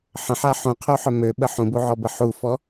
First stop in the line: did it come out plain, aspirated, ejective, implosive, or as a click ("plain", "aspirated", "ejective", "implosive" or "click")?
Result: aspirated